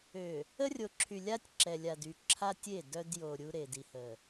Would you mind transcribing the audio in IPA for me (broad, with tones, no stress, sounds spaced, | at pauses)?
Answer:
ø˨ | ə˦ rʲ o˨ ǁʰ y˨ lʲ a˦ tʲ ǁ ɛ˨ lʲ a˨ d y˨ ǁʰ a˦ tʲ e˦˨ d œ˦ d j o˨ ɾʲ u˦ ɾ e˨ d i˨ h ə˨